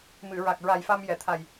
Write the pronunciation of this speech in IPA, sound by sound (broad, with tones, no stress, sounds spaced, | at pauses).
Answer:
m ɨ˨˩˨ ɹ a˨˩ k̚ ɹ a˨˩ j f a˧ m j ɛ˨˩˨ t̪ʰ a˨˩ j